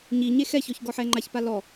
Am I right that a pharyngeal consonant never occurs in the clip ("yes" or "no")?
no